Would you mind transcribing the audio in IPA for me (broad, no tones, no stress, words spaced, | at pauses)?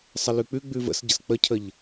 sˤəlʉk͡pʉ ɡ͡bʉvə̰sɟəs k͡pəcʰəʎ